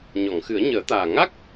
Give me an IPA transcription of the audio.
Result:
ɲ ɔ˨˩˨ ŋ x ɨ˨˩˦ ə̯ ɲ əː˨˩˦ t̪ aː˨˩ ŋ a˦˥ k̚

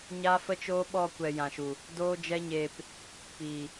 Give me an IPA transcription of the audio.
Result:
ɲ a˦ f ə˦ t͡ʃ oː˦ ɓ ɔ˧ kʷ ɛ˧ j ã˨ ʃ u˨ | d oː˦ d͡ʒ ɛ˦ ɲ eː˧ p | p iː˨

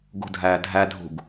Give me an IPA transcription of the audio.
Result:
ɡ ṳ dʱ æː dʱ æ dʱ ṳ ɡ

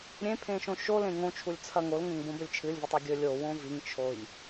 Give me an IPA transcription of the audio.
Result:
ɾʲ ẽ pʰ ẽ ʃ õ ʃ o l ẽ ŋ õ t͡ʃʰ u lʲ t͡sʰ ɐ ŋ o l ŋ ẽ ŋ b õ b ɵ lʲ t͡ʃʰ ɨ lʲ v u tˤ o ɡʲ ɵ lʲ o w õ v i ŋ t͡ʃʰ o j

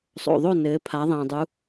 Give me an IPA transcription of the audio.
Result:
sˤ o̰˩ ðˤ o˥˨ n ɘː˩˧ pʰ a˩˧ ðˤ ɛ̃ː˩ dˤ u˩˧

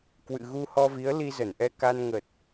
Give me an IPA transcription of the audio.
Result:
k w ɨ̰˧˨ ɣ u˧ h ɔ˧ v i˨˦ ə̯ l i˧ z ə˧˩ n ʔ ɛ˧ k a˧ n ŋ ə˨˩ t̚

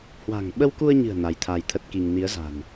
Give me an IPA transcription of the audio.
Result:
h w a̤˨˩ ŋ ɓ ə˧ w k u˧ ə̯ ɲ ɨ̤˨˩ ə̯ n a˨˦ j t̪ʰ a˧ j t̪ʰ ə˦˥ t̚ k i˧ ŋ n i˨˦ ə̯ z a̤˨˩ n

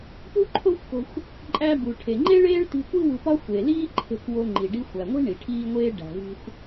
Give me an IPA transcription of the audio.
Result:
p u˥ ǃʰ o˥ xʷ k o̤˧ xʷ | ǃʼ æ˧ b u˩ ʈʰ e˩ ŋ͡ǃ e˥ ɭ eː˥ ɭ t i̤˧ kʷ i˥ w ṳ˧ p ɒ˥ xʷ e˩ l iː˥ ǃʰ e̤˧ k w o˧ ŋ͡ǃ i˩ ɖ i˧ xʷ æ˩ ŋʷ i̤˥ ɳ i˩ ʈʰ iː˥ ŋʷ eː˥ ɖ æ̤˩ v i̤˧ xʷ

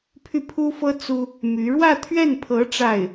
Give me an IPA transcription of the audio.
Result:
pʰ y˥˩ pʰ u˥ f ɤ˥ t͡s u˥ | m y˧˥ ɻ w ä˥˧ t̪ʰ ɥ ɛ˥˩ n pʰ ɤ˧˥ ʈ͡ʂ a˥˩ ɪ̯

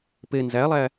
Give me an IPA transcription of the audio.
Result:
p e n z æ lˠ æ

